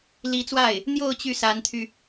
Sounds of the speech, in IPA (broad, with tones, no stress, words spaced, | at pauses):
li˧˥t͡swa˥˩ɪ̯ | n̪jo˥˧ʊ̯ t͡ɕy˥˩sa˧˥nt̪ʰy˧